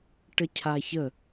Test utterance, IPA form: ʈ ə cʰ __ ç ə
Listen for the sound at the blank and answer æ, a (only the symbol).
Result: a